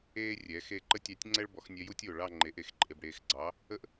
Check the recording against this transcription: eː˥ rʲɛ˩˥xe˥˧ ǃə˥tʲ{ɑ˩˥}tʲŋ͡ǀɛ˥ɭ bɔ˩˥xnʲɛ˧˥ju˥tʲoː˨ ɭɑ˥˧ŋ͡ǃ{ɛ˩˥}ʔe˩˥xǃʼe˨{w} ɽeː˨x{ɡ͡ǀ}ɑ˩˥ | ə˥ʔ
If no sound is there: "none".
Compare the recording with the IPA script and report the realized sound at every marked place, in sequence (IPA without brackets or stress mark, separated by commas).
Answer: ɑ˧˥, e˩˥, b, ɡ͡ǀ